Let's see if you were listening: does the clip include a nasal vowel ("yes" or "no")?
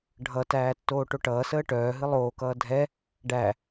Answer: no